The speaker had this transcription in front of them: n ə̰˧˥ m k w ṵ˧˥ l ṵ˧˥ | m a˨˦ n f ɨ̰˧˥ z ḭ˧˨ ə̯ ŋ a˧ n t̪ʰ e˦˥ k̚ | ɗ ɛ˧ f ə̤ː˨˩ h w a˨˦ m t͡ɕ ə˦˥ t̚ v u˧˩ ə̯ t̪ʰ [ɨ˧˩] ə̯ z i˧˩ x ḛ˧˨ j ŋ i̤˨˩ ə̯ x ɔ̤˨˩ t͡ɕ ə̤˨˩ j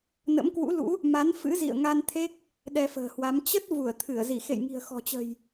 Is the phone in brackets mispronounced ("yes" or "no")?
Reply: no